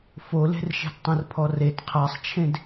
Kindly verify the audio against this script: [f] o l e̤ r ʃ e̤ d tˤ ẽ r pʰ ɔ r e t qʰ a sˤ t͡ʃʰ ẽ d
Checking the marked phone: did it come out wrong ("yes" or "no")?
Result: no